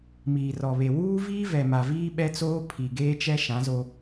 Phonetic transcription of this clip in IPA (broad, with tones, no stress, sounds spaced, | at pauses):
m iː˨ r ɔ˨ β e˨ w uː˦ v iː˦ v ɛ˨ m a˨ v iː˦ ɓ ɛ˦ t͡s oː˦ pʰ i˨ ɡ eː˦ t͡ʃ ɛ˦ ʃ ã˨˦ z o˦